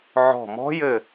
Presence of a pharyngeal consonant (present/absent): present